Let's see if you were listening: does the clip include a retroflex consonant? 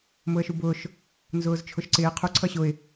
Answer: no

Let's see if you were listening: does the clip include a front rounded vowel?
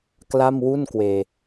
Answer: no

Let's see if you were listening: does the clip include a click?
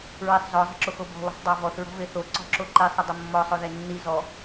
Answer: yes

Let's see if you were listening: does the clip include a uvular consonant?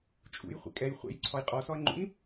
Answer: yes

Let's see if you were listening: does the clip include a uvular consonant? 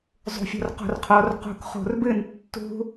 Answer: yes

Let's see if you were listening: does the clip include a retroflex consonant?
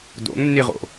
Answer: no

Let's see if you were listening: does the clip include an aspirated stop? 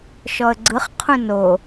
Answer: yes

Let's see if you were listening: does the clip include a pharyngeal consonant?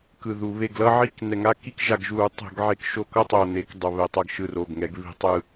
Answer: yes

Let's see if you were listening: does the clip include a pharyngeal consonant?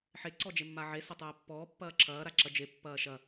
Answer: yes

